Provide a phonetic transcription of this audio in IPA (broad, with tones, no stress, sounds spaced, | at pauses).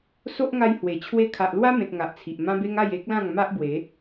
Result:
s o˦ ʔ ŋ a˧ j h w e˨˩ t͡ɕʰ w e˦ kʰ a˨ ʔ l w a˦ m ẽ˨ t̚ ŋ a˨ ʔ t͡sʰ i˨ ʔ m ã˦ b e˦ ŋ a˥˧ j e˦ k̚ l ã˥˧ ŋ m a˦ ʔ b w e˨˦